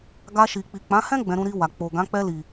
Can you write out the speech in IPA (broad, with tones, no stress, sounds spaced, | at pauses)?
ɡ a˧ ʃ i˨ k͡p i˨ k͡p ã˨˦ h ɛ̃˦ ɡ͡b ɛ̃˧ ɾ ũ˧ ɾ i˧ w a˨ k͡p o˨ ɡ ã˨˦ k͡p ɛ˧ l i˨